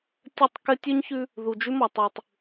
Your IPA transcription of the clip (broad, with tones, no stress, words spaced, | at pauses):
tʲə˦˨tˤ kɘ˦ tʲʉ˦ɲçʉ˦ | ðu˨d͡ʒʉ˦mɒ˨ tˤʉ˨tˤ